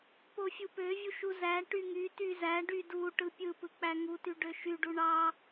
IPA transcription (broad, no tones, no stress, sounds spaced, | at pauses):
p o fʲ u p ø vʲ u ʃ u z æ ʈ y ŋ y t y z æ ɖ y d u ʈ ɯ pʲ ɯ p ɯ k͡p æ ŋ u t y ɖ ø ʃ y ɖ u ɳ ɑ